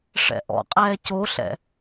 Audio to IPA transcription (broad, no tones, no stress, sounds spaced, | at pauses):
ʂ ɛ̰ ʔ ɔ̰ qʼ ɛː c o ɬ ɛ̰